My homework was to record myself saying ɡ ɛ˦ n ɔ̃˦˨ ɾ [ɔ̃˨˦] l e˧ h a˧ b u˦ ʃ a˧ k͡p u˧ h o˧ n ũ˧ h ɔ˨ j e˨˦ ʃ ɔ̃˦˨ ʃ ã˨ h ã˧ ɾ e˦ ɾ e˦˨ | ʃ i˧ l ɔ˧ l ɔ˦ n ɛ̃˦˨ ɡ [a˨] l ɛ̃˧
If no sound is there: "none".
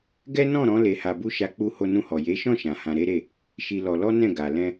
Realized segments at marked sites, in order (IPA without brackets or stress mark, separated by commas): ɔ̃˨˦, a˨